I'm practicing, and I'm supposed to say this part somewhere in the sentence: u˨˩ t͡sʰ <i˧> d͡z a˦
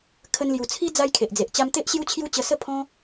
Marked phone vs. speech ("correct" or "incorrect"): incorrect